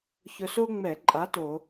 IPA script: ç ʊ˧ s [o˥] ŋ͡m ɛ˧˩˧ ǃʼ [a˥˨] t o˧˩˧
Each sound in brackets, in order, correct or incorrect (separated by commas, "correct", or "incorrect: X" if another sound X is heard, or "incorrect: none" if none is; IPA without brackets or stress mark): correct, incorrect: a˨˥